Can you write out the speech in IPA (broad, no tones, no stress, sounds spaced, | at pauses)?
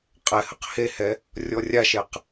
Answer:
qʼ ɛ h ə q h e h ɛ | rʲ ɔ rʲ a ʃ ɛ q